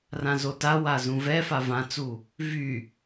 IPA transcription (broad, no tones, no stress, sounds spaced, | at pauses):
r ã z o t a w a z ũ v ɛ f a v ã t͡s u | v y